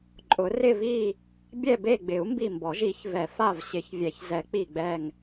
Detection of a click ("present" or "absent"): present